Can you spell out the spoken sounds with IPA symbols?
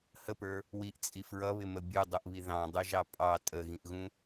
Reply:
həpə˞ | wiʔt͡sʼi fɹʌβɪmə bʲudˤuʔβi ðɑ̃dˤuʒɑ pʼɑ tʼəɣĩʔɣũ

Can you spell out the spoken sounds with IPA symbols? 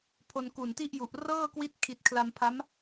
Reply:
pʰo˧nku˨˩nti˥˩ʔju˨˩ʔ rɤː˥˩kwi˦˥t̚kʰi˨˩t̚ kʰla˧mpʰa˦˥m

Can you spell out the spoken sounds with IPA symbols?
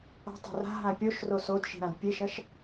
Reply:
a̤tˤo̤ ra̤ɦã pʲoʃro sodʃi̤ɾãd pʲeʃɐʃ

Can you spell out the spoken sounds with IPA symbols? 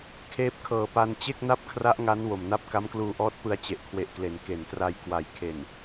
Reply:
kʰeː˦˥p̚kʰɤː˨˩pa˧n t͡ɕe˥˩k̚na˥˩p̚kʰra˦˥ʔ ŋa˦˥n wo˨˩mna˥˩p̚ ka˦˥mkluː˧ʔɔː˦˥t̚pɯ˧a̯ t͡ɕe˨˩ʔkʰwe˨˩ʔkle˩˦n ke˩˦ntra˧j kwa˩˦j kʰe˨˩n

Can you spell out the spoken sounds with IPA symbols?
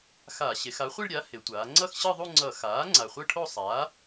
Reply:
xa˧˩˧ ɕe˩˧xa˩˥χʷi˥˧ɭɾʲa˩˥ he˩˧tʷaː˩˧ ŋ͡ǀʌ˥˧xɕɯ˥˧ðˤu˥˧ŋ͡ǀʌ˧˩˧ xaː˩˥ ŋ͡ǀa˨˩χʷɯ˥˧ʈʰo˥˧ sˤaː˩˥

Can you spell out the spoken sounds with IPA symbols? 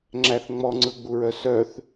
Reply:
ŋ͡ǁæθ ŋ͡mɔŋ͡ǀɯɡ͡buɹœ sœθ

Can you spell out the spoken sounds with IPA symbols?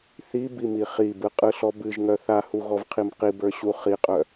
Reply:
θibimi χibɯqʼɯɬɔ bɨʒŋœ θahuɣɔvqʰim qibə˞ɕu χiqʼœ

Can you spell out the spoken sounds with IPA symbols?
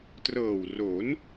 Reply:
trɤː˨˩wro˩˦n

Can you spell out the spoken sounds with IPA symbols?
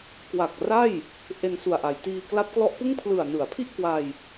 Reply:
kwa˨˩k̚ra˥˩j | ʔe˧nsu˨˩a̯ʔa˩˦jtiː˧ kla˦˥p̚klɔ˦˥ʔpɯ˥˩ŋ pʰlɯ˨˩a̯nɯ˩˦a̯pʰi˥˩ʔ kwa˧j

